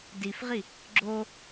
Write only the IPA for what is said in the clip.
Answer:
difʁi | ɡ͡ǁo

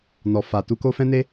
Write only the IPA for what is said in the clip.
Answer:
nɔ˨ fa˨ tu˧ko˦fɛ̃˦ne˦

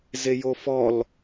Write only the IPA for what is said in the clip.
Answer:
zejofɔl

